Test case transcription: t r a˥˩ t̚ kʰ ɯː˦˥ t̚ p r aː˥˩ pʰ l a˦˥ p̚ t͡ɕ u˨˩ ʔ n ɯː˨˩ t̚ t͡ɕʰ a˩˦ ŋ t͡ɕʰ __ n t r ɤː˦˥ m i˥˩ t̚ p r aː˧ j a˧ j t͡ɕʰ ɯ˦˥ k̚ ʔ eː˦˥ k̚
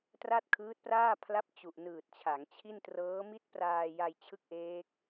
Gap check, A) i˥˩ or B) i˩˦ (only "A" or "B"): A